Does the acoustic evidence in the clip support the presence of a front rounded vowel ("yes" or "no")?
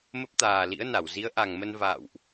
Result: no